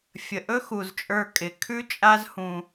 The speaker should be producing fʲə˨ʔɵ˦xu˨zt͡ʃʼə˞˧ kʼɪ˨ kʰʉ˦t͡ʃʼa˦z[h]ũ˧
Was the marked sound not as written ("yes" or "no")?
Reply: no